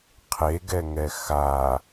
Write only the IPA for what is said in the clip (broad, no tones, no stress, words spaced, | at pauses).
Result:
qʰeɡɛŋɛ xa